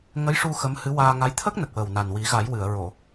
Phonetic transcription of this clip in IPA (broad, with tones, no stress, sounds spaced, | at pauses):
ŋ ə˧˥ j ʂ u˧ x ə˧˥ m h ɨ˧˥ w aː˧ ŋ a˧˥ j t̪ʰ ə˦˥ k̚ n ə˨˩ k̚ w ə˨˩ w n a˨˩ n w i˨˩˦ ɣ a˨˩˦ j w ɨ˨˩˨ ə̯ ɹ o˨˩˨